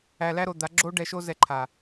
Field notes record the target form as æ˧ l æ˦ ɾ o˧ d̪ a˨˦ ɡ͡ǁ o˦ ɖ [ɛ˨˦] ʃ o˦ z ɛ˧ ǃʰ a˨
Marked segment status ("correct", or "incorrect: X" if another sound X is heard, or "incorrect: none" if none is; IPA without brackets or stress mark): incorrect: ɛ˧